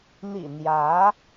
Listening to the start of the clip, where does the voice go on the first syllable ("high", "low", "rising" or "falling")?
low